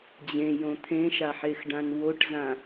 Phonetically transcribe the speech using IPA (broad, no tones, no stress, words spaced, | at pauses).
d͡ʑẽjõ t̪ʰẽʃaħexɖãn woʈzã